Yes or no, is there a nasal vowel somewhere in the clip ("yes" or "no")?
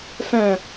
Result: yes